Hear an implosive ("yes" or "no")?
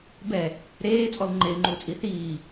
no